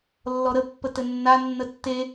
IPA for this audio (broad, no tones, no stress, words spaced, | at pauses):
lːɔɾəpːə tɘnːanːə tːe